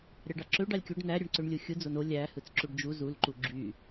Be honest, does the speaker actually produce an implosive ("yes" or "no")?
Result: no